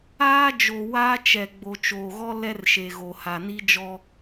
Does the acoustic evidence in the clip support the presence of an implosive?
no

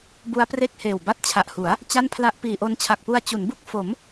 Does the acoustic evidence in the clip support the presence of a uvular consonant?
no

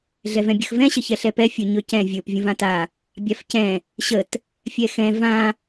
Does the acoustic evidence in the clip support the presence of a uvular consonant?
no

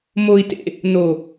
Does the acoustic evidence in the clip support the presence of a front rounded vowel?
no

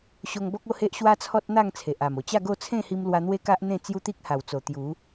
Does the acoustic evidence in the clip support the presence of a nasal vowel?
yes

